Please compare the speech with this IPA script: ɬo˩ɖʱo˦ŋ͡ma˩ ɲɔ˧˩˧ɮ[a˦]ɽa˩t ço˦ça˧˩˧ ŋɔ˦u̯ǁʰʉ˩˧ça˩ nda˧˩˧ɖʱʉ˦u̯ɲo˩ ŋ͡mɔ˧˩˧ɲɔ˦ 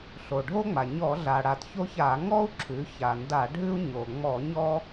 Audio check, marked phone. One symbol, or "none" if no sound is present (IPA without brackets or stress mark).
a˩